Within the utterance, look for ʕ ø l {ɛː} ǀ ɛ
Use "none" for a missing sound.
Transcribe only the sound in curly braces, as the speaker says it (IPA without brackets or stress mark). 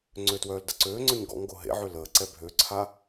əː